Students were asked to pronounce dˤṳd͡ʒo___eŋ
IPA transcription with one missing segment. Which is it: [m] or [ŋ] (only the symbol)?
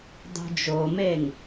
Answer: m